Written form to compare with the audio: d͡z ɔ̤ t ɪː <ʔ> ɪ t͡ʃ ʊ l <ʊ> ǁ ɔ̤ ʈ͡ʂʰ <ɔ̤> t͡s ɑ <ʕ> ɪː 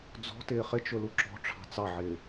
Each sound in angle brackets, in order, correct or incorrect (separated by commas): incorrect, incorrect, incorrect, correct